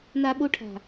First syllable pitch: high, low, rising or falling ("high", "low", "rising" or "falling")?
high